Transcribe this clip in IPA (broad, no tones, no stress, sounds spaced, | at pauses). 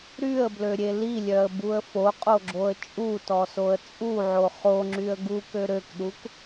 ɾ y ə̯ b l ø ɾʲ e l i lʲ œ ə̯ b u ə̯ f o qʼ o ɡ͡ǁ o ə̯ t͡ʃʼ u t ɔ s o ə̯ t͡sʼ u ʕ o χ o ŋ͡ǁ y ə̯ ɡ u k ø ɾ ø k ɗ u k